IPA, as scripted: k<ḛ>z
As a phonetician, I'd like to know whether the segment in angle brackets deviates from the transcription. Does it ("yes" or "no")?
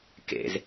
no